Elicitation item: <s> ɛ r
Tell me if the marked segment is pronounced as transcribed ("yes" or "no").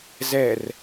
no